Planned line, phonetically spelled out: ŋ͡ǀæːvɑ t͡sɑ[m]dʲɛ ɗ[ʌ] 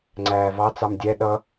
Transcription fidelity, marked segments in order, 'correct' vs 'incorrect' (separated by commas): correct, correct